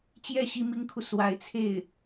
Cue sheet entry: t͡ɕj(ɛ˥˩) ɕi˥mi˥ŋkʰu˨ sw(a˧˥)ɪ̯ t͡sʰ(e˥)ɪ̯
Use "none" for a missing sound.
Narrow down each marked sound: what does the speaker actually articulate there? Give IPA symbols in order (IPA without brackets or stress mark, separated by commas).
ɛ˥˩, a˧˥, e˥˩